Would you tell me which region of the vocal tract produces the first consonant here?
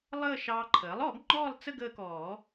tongue tip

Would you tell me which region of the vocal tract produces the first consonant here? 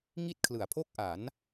velum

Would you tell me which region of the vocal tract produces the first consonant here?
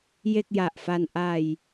palate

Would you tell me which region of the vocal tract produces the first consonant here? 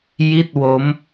palate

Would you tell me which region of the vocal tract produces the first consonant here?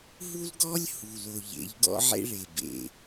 throat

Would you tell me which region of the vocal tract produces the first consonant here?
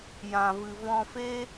palate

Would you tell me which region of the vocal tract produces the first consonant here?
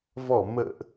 lips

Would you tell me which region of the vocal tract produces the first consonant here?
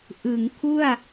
throat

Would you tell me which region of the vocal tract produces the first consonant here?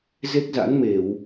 tongue tip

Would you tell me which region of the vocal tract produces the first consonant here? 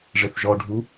retroflex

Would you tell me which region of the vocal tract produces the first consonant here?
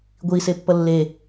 velum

